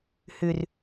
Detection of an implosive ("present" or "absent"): absent